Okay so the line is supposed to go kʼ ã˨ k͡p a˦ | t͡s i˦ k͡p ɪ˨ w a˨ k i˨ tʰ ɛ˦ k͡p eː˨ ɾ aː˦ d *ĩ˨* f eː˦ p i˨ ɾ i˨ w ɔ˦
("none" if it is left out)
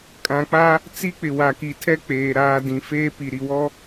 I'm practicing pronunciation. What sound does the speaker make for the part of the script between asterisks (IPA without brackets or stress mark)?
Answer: ĩ˨